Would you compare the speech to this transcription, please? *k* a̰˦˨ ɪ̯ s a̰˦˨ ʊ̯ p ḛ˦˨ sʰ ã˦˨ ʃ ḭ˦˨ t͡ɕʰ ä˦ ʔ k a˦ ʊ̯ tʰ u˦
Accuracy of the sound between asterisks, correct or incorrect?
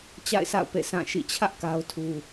incorrect